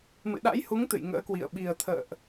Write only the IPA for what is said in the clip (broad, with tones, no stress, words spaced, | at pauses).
mɨ̰˧˨ɗa̰˧˥jhu˨˦ŋ t̪ɨ̰˧˨jŋə̰ː˧˥kwḭ˧˨ə̯ ɓi˨˩ə̯t̪ʰə̰ː˧˨ʔ